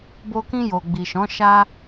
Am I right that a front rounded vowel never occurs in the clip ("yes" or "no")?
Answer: yes